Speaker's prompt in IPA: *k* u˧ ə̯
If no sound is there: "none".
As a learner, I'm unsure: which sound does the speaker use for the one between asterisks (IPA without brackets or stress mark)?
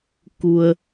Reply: k